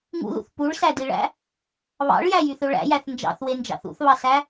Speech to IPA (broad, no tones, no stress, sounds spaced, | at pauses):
ŋ ṵ ð ṵ θ p u ɭ s æ d i ɭ æ̰ | β ɑ̰ ɭ j æ j y θ ø ɭ æ̰ j æ θ n d͡ʒ ɑ̰ θ w e n d͡ʒ ɑ̰ θ ṵ θ β ɑ s æ